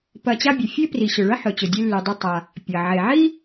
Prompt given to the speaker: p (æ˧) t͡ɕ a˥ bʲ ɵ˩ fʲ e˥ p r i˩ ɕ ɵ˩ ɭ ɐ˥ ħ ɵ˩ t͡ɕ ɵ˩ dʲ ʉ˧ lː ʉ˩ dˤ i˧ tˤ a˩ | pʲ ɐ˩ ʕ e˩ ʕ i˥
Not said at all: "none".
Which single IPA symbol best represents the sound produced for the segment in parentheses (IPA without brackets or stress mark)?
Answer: ɐ˧